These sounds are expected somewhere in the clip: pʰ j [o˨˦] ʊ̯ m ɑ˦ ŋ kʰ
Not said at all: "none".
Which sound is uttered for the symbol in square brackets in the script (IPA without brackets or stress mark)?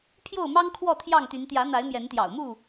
o˥˨